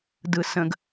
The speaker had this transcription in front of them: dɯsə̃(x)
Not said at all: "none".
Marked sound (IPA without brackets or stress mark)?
ɡ